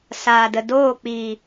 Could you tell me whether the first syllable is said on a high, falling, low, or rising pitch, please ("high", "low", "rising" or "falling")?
low